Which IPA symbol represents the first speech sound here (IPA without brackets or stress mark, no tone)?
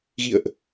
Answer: ɣ